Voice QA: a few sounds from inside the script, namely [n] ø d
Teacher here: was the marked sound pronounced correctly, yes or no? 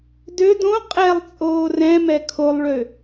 no